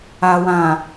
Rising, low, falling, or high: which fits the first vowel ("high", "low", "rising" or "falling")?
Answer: low